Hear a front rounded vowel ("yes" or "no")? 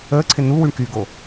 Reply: yes